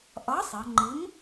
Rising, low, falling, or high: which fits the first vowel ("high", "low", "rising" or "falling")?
rising